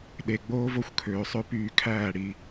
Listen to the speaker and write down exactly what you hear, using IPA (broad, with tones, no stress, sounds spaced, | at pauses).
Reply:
ɗ e˨ ɡ͡b oː˦ v o˦ xʷ kʰ øː˨ sˤ ø˦ p yː˨ kʰ æː˦˨ ɽ i˦